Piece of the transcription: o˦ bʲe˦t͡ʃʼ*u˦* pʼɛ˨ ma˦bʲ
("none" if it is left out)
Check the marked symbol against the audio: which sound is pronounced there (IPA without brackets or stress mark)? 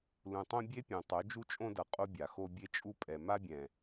u˦